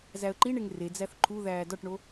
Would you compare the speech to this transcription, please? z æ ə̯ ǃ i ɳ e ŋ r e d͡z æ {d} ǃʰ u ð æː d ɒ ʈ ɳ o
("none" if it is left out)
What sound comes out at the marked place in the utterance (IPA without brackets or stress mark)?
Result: θ